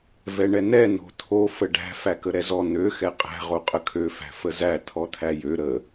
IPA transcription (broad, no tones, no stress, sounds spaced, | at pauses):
v ɛ ɳ ɛ n ɛ n o̤ t̪ʰ o f ə ɖ æ̤ f æ k ə ɾ ɛ z ɔ n̪ ø x ɛ qʼ æ̤ ʁ o qʼ ə kʰ ø f æ̤ f ə z æ t̪ʰ ɔ t̪ʰ æ j ø ɾ ə